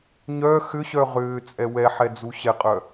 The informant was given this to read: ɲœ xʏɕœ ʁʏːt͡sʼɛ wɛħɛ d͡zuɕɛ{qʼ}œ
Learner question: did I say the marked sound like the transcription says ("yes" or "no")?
yes